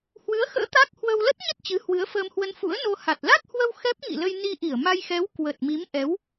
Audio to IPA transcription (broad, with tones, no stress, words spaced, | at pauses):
hwɨ˨˦ə̯xə̰ː˧˥ t̪a˦˥k̚hwə˧w lə˦˥t̚ɲə˦˥t̚ t͡ɕɨ˨˦hwɨ˨˦ə̯fəː˧mhwə˧n fṵ˧˥ə̯no˧ ha˨˩t̚ la˦˥k̚hwə˧w xɛ˦˥p̚ŋḭ˧˨lə˧j ni˧ʔi˧˩ə̯ma˧jxɛ˨˦w kwə˨˩t̚mi˨˦mʔɛ˨˦w